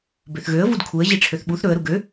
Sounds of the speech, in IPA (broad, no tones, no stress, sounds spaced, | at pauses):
b ø θ ɣ ø ə̯ v u d kʰ u ə̯ ʑ i ʈ͡ʂʰ ø θ ɓ u θ ɾ ɵ ə̯ ɾ u ɡ ø